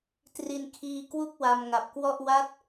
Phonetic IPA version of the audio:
t r i˧ n kʰ iː˧ k w u˥˩ k̚ w a˧ m ŋ a˨˩ p̚ k w ɔ˥˩ ʔ w a˦˥ t̚

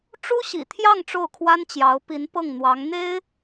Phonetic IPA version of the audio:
ʈ͡ʂ u˥ ɕ ḭ˨˩ t̪ʰ j ɑ˥˧ ŋ ʈ͡ʂ o˥˩ ʊ̯ kʰ w a˥ n t͡ɕ j ɑ˧˥ ʊ̯ p i˧˥ n p ɤ˥˩ ŋ n̪ w ɑ˧˥ ŋ n̪ e˥ ɪ̯

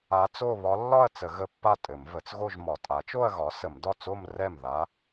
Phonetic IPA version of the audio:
a˧˥ t͡s o˥˧ β ɒ˧˥ lː ɒ˥˧ ɐ̯ t͡s ə˨˩˦ ɣ ə˧˥ pː a˥˩ tʼ ɘ˨˩˦ m v ə˩˥ t͡s ɣ o˥˧ ʒ m ɒ˨˩˦ tʼ a˩˥ t͡ʃ o˥˧ ɐ̯ ɣ ɒ˩˥ s ə˨˩˦ m d ɒ˥˩ t͡s o˥˧ m r ɛ˥˩ m ð a˧˥

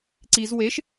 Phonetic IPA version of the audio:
ǀ i z w e ʃ

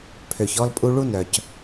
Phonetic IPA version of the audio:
pʰ ø˨ ç ɔ˦ l pʼ u˦ ɭ u˦ n œ˨ c

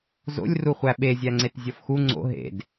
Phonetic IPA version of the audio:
z o̰ lʲ r u χʷ æ ɓ e zʲ æ ŋ͡ǀ e t zʲ ɒ f x u ŋ͡ǀ o̰ ɦ ḛ d

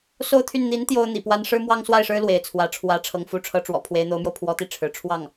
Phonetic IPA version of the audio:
s o˥˧ ʊ̯ t̪ʰ y˥˩ n n̪ i˧˥ n t̪ j o˥ ʊ̯ n̪ ḭ˨˩ p w a˥ n ʂ ɻ̩˥ m w ɑ˥ ŋ s w a˥˩ ɪ̯ ʂ ɻ̩˥ l w e˧˥ ɪ̯ t͡sʰ w ä˧˥ ʈ͡ʂʰ w ä˧˥ ʈ͡ʂʰ ɤ˧˥ ŋ f u˧˥ ʈ͡ʂʰ ɤ˧˥ ʈ͡ʂ w ɔ̰˨˩ pʰ w e˧˥ ɪ̯ n̪ o˧˥ ʊ̯ m j o˧ ʊ̯ pʰ w ɔ˧˥ t̪ i˥˩ ʈ͡ʂʰ ɻ̩˧˥ ʈ͡ʂʰ w ɑ˥˩ ŋ

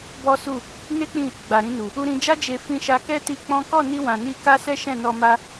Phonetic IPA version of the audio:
b ɔ˦ s u˦˨ | n e˦ k͡p ĩ˦˨ | ɡ͡b a˨ ɾ ĩ˧ n u˨ | u˧ ɾ ĩ˧ d͡ʒ a˦ d͡ʒ e˧ f ĩ˧ ʃ a˧ k ɛ˦ t i˧ k͡p ɔ̃˦ k ɔ˦˨ n i˧ w ã˨ n i˧ k a˦ s ɛ˦ ʃ ɛ̃˦˨ n ɔ˧ m a˦

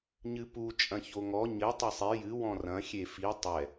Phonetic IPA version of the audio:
ɲ ɨ p u t͡ʃʼ ɐ̃ ç o ŋ ɔ ɲ ɘ tˤ ɐ sˤ e j ɨ w ɔ̃ r ɐ̃ xʲ e f i tˤ ɛ

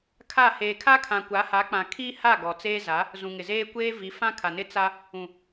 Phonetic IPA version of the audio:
kʰ a˦˨ h eː˨ kʰ a˦ kʰ ã˨ kʷ a˨˦ h a˨˦ k͡p ã˨ kʰ iː˦ h a˦˨ ɡ ɔ˨ t͡s eː˦ z a˨˦ | z ũ˨ ŋ ɪ˨ z eː˦ kʷ eː˦ v i˨˦ f ã˦ kʰ a˨ n ɪ˦ t͡s a˦ | ũ˨

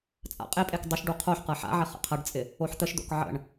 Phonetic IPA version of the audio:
t͡sʼ a̰ qʼ e pʼ e k dˤ ʊ ʃ ɖ u qʰ o ħ q ɤ ħ a̰ ʕ ɪ χ ə̰ qʰ ɐ ɖ t͡sʼ ɪ | o ħ t̪ ə ʃ d̪ o̰ k ʕ ə̰ ɳ

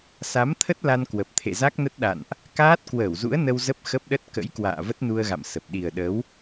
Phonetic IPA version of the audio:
s a˨˦ m t̪ʰ ə˦˥ t̚ l a˧ n k w ə˨˩ p̚ t̪ʰ ḛ˧˨ z a˦˥ k̚ n ə˦˥ t̚ ɗ a̰˧˨ n ʔ | k aː˦˥ t̚ k w əː˧˩ w z ṵ˧˥ ə̯ n ə˧ w z ə˦˥ p̚ x ə˦˥ p̚ ɗ ə˦˥ t̚ k ə̰˧˥ j k w a̰ː˧˨ v ə˦˥ t̚ n u˧ ə̯ ɣ a̰˧˨ m s ə˨˩ p̚ ɗ i˨˩ ə̯ ɗ ə˨˦ w

